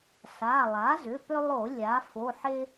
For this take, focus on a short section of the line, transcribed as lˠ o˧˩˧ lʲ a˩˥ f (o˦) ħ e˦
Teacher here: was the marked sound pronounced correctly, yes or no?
no